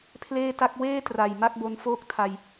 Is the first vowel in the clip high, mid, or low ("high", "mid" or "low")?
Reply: mid